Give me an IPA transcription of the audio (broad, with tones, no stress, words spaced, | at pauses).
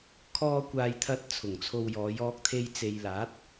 kʰɔː˧kʷaː˨jt̪ʰɐ˧t̚ t͡sʰʊ˨˩ŋt͡sʰo˧wjɔː˨˧j ɔː˧k̚t̪ʰe˧jt͡se˨jlaː˨˥t̚